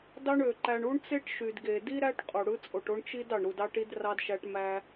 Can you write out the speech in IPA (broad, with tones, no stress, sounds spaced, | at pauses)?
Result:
d ɑ˦ ɳ ø˩ ǃ æ˨ ɳ u˥ ɳ t͡s e˥ ʈ ʃ y˩ d ɡ e˩ d i˥ ɾ æ˦ ʈ qʼ u˩ ɽ ɯ˦ t͡sʼ o˨ ʈ o˥ ɳ t͡ʃ i˥ d ɑ˩ ɳ ɾ u˨ d ɑ˦ ʈ i˦ d r ɑ˦ d ʃ æ˦ ʈ m æ˦